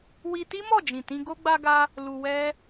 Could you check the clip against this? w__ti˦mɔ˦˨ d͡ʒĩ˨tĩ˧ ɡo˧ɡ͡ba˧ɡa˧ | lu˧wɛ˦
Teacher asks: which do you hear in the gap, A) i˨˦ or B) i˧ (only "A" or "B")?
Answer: B